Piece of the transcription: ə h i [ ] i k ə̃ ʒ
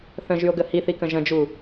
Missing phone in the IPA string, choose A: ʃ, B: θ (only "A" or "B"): B